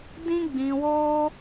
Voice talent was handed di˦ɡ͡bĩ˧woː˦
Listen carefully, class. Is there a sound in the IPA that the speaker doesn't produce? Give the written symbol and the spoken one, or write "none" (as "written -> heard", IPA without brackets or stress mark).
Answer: i˦ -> ĩ˦